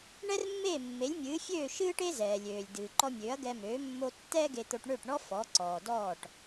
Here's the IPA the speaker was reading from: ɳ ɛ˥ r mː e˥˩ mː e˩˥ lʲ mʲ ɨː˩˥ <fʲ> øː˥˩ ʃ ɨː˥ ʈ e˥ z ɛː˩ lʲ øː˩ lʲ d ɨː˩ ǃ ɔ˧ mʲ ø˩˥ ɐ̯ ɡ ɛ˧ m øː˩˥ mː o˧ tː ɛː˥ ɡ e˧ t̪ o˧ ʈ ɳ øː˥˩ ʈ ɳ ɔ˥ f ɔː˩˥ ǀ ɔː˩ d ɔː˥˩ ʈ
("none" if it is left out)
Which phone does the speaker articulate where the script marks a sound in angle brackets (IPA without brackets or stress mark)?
fʲ